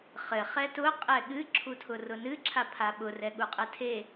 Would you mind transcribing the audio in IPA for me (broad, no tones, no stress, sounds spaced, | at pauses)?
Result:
χ ɘ χ ɛ t ʊ qʼ ɛ ɠ ɨ ǁʰ u tʰ ʊ r ʊ n ɨ ǁʰ a pʰ a ɓ ʊ r ɛ ɠ u qʼ ɘ tʰ e